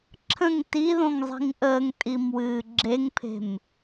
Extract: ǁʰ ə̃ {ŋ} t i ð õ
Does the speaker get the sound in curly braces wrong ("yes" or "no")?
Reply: no